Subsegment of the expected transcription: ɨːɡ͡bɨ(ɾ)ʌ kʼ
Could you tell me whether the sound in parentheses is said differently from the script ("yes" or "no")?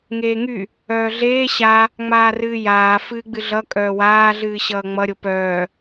yes